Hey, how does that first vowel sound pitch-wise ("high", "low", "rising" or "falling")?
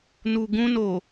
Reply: low